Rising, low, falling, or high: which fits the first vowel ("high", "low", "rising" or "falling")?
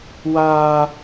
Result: high